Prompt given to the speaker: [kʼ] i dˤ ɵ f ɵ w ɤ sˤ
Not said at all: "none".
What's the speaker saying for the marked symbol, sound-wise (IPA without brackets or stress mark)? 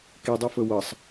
k